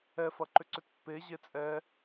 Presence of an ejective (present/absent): present